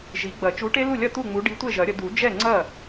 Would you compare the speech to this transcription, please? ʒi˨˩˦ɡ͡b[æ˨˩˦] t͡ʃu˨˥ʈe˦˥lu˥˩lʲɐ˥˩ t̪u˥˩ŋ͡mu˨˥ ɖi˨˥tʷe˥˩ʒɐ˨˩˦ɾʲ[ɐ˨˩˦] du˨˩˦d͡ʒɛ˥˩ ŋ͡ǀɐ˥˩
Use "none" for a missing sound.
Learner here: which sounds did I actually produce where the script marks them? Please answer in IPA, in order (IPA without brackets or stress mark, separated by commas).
ɐ˨˩˦, ə˨˩˦